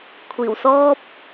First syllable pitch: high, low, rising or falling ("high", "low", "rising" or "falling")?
low